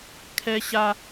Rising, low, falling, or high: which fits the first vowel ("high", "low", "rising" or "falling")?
low